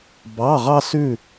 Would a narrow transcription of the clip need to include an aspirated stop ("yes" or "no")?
no